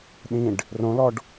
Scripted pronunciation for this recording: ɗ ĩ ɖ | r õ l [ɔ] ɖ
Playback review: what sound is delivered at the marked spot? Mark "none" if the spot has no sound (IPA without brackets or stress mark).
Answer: ɔ